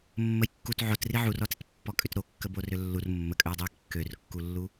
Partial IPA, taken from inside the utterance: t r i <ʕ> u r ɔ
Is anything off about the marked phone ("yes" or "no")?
no